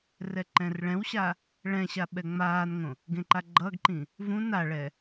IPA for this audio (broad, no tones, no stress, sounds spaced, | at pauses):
r ɛ ǃ ɛ̃ r ɭ ɛ̃ w ɕ a | ɭ ɛ̃ ɕ a ɓ ɛ ŋ͡m aː n ŋ õ | ɡ ẽ ǃ a ɡ͡ǃ ʌ ɡ ǃ ĩ | v ũ n a ɭ ɛ